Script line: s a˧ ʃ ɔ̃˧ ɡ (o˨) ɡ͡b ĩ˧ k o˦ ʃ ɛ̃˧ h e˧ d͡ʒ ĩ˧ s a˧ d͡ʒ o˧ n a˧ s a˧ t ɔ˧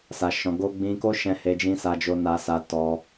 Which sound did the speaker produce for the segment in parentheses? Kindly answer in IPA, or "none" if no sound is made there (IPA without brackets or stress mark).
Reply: o˦